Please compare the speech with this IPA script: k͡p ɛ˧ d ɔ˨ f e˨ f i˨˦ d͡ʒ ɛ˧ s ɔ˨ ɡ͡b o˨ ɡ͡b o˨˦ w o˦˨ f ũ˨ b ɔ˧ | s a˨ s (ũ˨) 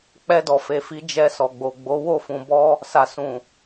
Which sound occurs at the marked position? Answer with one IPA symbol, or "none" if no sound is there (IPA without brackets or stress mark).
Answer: ũ˨